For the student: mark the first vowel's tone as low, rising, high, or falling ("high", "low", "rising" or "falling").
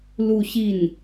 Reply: falling